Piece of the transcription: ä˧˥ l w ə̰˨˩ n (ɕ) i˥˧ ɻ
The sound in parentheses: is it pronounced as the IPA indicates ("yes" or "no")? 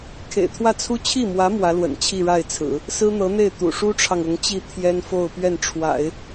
no